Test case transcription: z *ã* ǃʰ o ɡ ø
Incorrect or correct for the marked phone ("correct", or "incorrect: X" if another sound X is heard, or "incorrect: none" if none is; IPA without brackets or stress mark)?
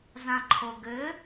correct